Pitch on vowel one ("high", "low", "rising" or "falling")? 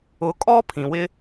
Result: rising